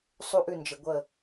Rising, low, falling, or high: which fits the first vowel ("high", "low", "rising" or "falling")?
falling